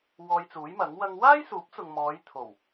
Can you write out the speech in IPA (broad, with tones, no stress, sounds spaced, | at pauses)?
w ɔː˧ j t͡s uː˨˥ j m ɐ˨˥ ŋ w ɐ˥ ŋ w aː˥ j s uː˨˥ p̚ t͡s ʊ˨ ŋ m ɔː˨˧ j t̪ʰ o˨˩ w